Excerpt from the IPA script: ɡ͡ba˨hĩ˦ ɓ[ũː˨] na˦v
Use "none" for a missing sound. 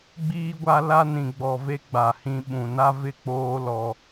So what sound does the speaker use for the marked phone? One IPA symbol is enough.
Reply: ũ˨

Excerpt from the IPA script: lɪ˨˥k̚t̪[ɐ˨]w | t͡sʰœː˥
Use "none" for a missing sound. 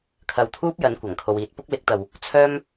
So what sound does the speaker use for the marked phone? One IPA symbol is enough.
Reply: ɐ˨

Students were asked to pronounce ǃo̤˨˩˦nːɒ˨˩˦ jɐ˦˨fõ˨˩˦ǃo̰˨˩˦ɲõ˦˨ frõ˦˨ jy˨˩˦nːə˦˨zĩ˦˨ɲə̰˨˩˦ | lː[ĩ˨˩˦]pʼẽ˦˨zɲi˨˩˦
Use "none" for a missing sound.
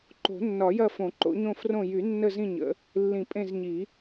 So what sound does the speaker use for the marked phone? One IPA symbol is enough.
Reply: ĩ˨˩˦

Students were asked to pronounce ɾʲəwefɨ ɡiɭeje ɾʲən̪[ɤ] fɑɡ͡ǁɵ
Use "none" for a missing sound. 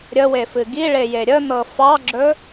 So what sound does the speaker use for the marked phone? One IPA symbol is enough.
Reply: ɤ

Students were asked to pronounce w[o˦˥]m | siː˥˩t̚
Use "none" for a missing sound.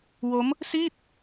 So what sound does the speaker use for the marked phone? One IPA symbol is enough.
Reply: o˦˥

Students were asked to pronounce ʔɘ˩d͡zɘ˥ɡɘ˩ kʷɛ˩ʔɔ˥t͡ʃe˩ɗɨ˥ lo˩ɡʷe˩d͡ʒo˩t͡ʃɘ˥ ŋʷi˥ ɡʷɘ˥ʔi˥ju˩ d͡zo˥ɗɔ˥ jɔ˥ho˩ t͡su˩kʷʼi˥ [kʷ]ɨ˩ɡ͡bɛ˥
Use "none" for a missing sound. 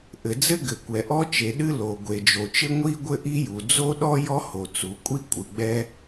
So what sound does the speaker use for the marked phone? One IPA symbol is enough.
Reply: kʷʼ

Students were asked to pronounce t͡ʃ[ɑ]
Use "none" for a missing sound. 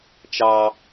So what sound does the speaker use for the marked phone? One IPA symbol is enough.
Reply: ɑ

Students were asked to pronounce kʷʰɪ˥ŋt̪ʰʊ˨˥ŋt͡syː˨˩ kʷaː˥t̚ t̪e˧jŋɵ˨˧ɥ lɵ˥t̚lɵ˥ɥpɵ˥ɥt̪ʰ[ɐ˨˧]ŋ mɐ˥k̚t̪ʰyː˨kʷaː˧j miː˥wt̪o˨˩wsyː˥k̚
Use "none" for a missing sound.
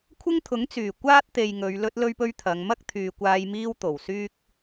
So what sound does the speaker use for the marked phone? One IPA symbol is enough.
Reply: ɐ˨˧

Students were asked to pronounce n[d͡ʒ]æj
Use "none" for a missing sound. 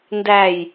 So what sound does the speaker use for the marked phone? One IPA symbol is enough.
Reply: d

